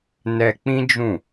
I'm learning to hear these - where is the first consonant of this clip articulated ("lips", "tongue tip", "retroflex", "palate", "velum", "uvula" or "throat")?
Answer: tongue tip